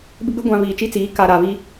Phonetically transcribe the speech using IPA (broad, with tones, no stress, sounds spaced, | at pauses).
b ɪ˦ ɡ͡b ɪ˦ ɡʷ ã˨ β iː˨ t͡ʃ i˦ t͡s iː˨˦ k a˨ ɾ a˨ β i˦